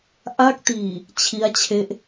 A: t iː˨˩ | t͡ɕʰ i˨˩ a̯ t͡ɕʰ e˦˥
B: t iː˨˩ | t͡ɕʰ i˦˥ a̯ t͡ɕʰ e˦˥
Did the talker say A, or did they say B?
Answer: B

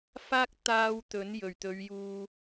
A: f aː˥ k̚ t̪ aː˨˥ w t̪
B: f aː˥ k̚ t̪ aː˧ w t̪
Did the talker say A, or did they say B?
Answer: B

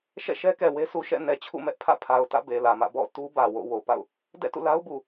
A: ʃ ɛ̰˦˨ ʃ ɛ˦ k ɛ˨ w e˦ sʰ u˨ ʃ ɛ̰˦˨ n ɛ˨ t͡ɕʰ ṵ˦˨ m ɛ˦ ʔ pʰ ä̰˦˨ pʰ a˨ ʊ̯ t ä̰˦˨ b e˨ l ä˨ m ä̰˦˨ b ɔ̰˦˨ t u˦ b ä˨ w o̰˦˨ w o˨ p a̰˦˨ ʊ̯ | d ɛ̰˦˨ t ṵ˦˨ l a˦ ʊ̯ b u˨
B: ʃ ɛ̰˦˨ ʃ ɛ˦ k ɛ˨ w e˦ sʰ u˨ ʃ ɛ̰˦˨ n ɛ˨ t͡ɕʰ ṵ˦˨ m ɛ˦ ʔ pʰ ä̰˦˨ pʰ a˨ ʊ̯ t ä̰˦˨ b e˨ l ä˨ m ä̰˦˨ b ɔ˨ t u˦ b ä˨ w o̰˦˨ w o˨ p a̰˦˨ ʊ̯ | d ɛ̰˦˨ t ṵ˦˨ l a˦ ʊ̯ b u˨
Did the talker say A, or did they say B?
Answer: A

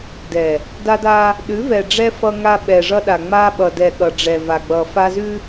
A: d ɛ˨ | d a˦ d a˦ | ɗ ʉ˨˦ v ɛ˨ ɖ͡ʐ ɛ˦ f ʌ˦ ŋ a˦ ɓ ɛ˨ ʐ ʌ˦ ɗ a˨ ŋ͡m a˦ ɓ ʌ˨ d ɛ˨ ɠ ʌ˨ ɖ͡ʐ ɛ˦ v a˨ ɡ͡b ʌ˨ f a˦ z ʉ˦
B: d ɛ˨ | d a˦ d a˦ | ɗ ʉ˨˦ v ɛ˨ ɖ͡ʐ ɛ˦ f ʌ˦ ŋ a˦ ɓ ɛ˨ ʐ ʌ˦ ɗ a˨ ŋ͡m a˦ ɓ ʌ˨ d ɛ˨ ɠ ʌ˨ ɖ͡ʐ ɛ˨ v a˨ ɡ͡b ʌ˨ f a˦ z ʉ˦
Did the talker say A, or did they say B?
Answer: B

